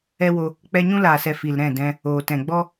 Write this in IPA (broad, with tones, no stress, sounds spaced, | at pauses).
ɛ˦ w o˧ | k͡p ɛ˧ ɲ ũ˦ l aː˨ s ɛ˨ f i˨ l ɾ ɛ̃˦˨ d ɛ̃˧ | oː˨ t ɛ̃˨ ɡ͡b ɔ˦